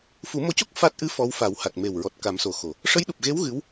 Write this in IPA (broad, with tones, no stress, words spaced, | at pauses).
fu˨˩˦mo˧co˦˥k̚ fa˦˥t̚ ʔɨ˧˥ fɔ˧˥wfa˨˩˦w ha˨˩t̚me˨˩wɹɔ˨˩t̚ ka˨˩˦mso˨˩xo˨˩˨ | ʂə˧˥jɗu˨˩p̚ɣe˧˥w ɣɨ˧˥w